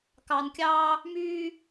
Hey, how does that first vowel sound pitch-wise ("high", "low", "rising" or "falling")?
low